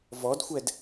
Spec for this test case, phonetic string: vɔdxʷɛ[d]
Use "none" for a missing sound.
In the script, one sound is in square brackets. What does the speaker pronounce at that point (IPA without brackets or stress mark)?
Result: d